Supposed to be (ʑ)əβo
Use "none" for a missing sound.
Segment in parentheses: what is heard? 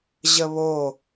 ʑ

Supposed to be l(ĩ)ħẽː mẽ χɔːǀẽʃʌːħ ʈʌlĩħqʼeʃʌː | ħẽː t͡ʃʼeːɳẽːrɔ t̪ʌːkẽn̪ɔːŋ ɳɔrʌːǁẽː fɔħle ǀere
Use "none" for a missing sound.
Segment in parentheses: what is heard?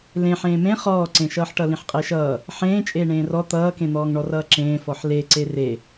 ẽ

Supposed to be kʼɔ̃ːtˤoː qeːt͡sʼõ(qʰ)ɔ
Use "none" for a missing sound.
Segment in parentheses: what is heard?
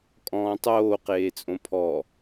pʰ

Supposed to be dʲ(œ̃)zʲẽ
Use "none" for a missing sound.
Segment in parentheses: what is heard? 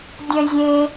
œ̃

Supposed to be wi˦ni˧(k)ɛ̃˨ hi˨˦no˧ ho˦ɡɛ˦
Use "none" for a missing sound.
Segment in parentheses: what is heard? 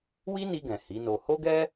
ɡ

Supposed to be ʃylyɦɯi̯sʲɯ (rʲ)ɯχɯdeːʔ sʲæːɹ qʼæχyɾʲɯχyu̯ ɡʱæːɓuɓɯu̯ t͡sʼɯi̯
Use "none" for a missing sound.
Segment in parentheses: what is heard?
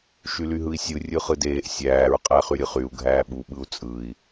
rʲ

